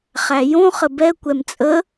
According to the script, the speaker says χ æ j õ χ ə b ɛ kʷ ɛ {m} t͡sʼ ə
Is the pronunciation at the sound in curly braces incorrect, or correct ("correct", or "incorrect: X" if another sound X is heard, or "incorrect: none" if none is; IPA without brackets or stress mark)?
correct